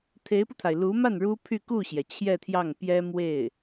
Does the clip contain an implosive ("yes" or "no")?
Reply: no